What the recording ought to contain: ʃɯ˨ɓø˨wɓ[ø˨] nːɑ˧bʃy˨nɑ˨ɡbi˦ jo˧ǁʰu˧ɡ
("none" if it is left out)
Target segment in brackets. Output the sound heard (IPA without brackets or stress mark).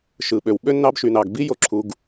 ø˦